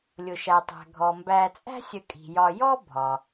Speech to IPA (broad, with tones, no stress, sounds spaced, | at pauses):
lʲ ʊ˩ ʃ æ˩ tˤ æ̤˩ ɡʱ ɔ˩ m b æ˨ t͡sʼ æ̤˥ sʲ ə˨ kʼ i̤˩ j ɒ˨ j ɔ˥ bʱ ɒ˩